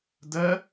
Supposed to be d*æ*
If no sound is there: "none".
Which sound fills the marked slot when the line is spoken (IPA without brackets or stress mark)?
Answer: ɜ